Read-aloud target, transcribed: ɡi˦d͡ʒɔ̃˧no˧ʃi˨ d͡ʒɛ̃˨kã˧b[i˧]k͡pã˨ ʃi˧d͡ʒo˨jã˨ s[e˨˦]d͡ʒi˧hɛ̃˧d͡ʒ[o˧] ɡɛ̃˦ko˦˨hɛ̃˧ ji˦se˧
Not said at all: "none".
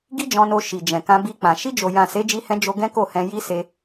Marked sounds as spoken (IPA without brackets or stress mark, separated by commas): i˧, e˨˦, o˧